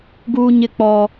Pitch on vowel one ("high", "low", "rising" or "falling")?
high